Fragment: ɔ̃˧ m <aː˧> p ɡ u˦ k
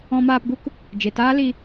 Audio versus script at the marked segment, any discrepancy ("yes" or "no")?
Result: no